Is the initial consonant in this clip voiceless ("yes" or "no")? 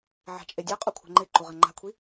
no